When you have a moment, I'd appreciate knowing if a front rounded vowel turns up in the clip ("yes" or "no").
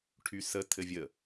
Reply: yes